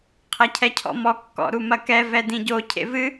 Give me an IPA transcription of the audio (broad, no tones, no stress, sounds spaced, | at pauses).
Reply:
qʰ ɐ cʰ ɛ cʰ ɔ̰ m ɔ kː ɔ̰ ɾ u m ɐ k ɛ v ɛ d ĩ ɟ o cʰ ḛ v ɨ